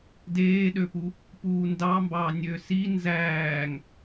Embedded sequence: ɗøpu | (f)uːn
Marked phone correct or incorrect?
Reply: incorrect